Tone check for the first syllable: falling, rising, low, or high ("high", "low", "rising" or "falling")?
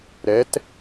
rising